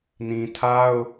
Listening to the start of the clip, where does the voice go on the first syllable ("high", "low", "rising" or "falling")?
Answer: low